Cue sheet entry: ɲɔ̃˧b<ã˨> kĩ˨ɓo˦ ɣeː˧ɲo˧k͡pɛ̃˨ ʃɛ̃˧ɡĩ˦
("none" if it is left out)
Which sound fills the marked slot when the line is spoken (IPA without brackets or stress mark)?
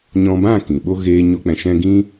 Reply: ã˦˨